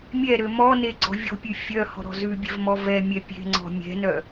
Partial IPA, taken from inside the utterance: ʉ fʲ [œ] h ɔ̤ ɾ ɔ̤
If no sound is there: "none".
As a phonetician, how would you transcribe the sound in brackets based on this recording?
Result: œ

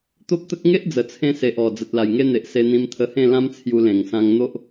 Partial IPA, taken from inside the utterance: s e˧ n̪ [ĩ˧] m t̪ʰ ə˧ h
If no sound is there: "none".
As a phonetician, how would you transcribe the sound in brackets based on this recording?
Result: ĩ˧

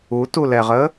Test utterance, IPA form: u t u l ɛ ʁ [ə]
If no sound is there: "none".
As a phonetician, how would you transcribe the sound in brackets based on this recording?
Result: ə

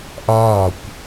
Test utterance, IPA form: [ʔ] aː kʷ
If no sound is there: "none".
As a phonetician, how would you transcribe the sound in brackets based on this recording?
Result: ʔ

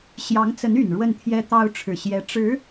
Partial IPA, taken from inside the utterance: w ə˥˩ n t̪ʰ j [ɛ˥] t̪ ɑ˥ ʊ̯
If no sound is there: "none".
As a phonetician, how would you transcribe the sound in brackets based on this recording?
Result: ɛ˥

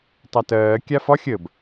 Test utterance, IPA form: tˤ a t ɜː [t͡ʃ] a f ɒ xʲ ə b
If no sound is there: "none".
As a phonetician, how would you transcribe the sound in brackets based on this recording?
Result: kʲ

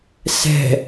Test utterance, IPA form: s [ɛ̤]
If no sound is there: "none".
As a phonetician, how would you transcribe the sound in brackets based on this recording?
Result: ɛ̤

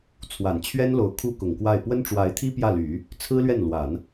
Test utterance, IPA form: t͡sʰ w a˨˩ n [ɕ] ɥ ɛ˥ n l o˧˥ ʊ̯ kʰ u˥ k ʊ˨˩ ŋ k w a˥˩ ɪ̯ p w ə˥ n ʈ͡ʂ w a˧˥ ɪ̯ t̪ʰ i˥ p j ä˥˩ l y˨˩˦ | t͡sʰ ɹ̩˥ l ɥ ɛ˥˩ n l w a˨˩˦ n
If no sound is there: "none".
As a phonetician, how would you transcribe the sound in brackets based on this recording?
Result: t͡ɕʰ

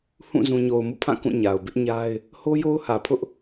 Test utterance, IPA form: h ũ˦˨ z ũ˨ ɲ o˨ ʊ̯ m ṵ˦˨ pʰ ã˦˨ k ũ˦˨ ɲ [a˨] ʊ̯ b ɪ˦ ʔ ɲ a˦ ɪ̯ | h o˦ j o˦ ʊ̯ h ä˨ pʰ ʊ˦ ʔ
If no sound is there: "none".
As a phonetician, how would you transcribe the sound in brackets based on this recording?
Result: a˨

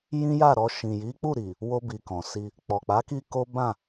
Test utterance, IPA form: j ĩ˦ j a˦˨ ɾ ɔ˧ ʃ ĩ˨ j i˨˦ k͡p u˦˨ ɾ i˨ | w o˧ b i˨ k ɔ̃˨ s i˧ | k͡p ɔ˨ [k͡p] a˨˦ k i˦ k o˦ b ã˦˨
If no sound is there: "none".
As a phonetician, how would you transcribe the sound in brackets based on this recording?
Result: k͡p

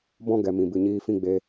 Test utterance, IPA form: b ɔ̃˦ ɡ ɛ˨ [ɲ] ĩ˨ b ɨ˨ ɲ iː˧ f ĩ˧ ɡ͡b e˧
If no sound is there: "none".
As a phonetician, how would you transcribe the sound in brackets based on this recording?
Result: m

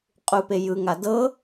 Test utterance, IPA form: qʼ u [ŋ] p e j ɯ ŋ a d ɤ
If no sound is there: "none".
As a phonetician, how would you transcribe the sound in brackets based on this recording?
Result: none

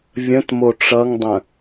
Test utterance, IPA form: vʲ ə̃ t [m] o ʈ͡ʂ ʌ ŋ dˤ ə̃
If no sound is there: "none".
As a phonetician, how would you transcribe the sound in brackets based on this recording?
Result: m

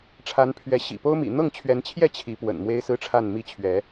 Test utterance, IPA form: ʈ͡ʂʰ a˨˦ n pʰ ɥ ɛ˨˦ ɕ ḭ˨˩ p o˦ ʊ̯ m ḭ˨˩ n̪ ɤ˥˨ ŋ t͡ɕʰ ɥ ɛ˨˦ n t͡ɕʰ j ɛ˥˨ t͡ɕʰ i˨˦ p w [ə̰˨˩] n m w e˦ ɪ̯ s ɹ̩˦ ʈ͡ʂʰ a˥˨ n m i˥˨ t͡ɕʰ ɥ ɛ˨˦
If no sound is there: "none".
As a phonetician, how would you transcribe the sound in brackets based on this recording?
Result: ə̰˨˩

